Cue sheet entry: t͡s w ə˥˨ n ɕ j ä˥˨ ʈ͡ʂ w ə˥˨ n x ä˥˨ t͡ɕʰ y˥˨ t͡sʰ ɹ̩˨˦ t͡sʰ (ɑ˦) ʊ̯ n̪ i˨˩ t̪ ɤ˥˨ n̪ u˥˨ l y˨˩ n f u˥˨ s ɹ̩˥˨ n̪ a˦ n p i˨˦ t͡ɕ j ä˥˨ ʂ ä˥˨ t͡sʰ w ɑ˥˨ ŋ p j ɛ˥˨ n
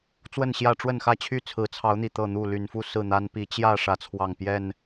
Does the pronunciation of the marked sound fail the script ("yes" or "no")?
yes